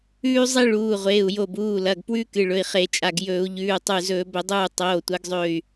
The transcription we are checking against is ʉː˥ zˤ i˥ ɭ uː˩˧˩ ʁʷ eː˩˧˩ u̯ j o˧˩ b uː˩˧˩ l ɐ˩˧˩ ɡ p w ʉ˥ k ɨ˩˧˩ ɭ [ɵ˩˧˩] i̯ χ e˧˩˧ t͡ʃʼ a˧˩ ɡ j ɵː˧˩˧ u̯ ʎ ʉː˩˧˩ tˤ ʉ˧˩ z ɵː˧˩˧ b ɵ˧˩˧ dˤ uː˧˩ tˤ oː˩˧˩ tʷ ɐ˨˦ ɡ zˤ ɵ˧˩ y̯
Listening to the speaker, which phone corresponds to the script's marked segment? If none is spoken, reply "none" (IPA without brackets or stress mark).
ɵ˩˧˩